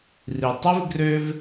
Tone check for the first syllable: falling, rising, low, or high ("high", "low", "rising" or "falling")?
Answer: low